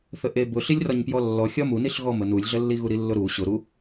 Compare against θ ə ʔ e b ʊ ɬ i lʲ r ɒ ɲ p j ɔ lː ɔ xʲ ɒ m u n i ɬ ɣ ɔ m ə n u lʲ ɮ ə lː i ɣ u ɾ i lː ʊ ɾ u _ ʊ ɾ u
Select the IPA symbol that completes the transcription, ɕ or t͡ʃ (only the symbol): ɕ